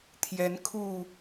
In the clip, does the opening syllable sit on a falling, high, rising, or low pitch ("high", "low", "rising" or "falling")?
rising